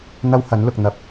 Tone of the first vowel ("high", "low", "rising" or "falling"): high